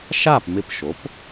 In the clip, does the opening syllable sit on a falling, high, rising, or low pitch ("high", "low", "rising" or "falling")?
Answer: falling